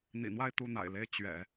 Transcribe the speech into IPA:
n̪ ḭ˨˩ n̪ w a˥˧ ɪ̯ t̪ u˥˩ n̪ a̰˨˩ ɪ̯ l e˥˩ ɪ̯ t͡ɕ ɥ ɛ̰˨˩˦

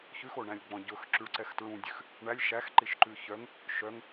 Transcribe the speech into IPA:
ç ʉ x o ɳ æ̃ lʲ ɡ͡b ɔ̃ ɟ ɵ x ǁ y ɭ ǀ ɛ x t ɹ ũ dʲ ʉ x | ɳ æ lʲ ʃ æ x ǃ i ʃ ǃ ʉ ç œ ŋ | ʃ œ ŋ

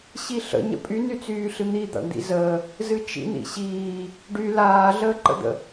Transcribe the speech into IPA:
ɕ i ɬ ə̰ ɲ ə̰ pʼ y n y t͡s yː ɬ ɨ n̪ i d̪ a̰ ɳ d̪ ḭ z əː | z ɨ t͡ʃ ḭ n̪ ḭ ɕ iː | ɖ y l aː ɮ əː ǃ ə̰ d̪ ə̰

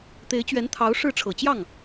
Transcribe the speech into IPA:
t̪ e˧˥ ɪ̯ t͡ɕ ɥ ɛ˧˥ n t̪ʰ ɑ˧˥ ʊ̯ ʂ ɻ̩˥˩ ʈ͡ʂʰ ɤ˨˩ t͡ɕ j ɑ˥˩ ŋ

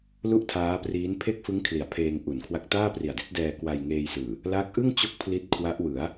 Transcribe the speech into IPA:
l u˥˩ ʔ tʰ aː˦˥ p r iː˦˥ n pʰ e˥˩ k̚ f ɯ˦˥ ŋ kʰ l i˩˦ a̯ pʰ eː˧ ŋ ʔ u˩˦ n kʰ w a˦˥ k̚ t aː˥˩ p r i˨˩ a̯ d i˦˥ t̚ d ɛː˧ k w a˧ j ŋ eː˧ j s ɯː˨˩ | l a˦˥ k̚ ʔ ɯ˥˩ ŋ t͡ɕ o˦˥ k̚ pʰ l i˦˥ t̚ kʰ w a˦˥ ʔ w ɯ˩˦ a̯

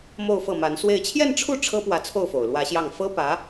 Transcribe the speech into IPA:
m o˥˧ ʊ̯ f ɤ˥˩ m a˧˥ n s w e˥˧ ɪ̯ t͡ɕʰ j ɛ˥˧ n ʈ͡ʂʰ u˥˩ ʈ͡ʂʰ ɤ˥ p w ä˧˥ t͡sʰ o˥˩ ʊ̯ f o˨˩ ʊ̯ l w ä˧˥ ɕ j ɑ˥˩ ŋ f ɤ˥ p ä˧˥

